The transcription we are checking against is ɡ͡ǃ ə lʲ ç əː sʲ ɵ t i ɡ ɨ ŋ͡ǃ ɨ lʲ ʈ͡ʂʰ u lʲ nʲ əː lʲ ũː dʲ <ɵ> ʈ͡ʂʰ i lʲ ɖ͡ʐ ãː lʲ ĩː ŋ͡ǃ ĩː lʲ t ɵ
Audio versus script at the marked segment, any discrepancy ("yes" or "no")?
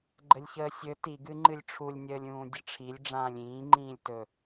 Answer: yes